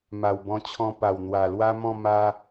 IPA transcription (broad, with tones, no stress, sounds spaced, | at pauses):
m a˨˩ w b ɔ̃˧ t͡ɕʰ ɔ̃˧ p a˨˩ w n̪ w a˨˩ l w a˦ m ɔ̃˥˧ m a˧